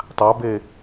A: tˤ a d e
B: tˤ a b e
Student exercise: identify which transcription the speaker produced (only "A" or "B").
B